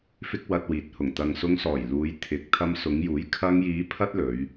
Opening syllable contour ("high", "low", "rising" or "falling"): high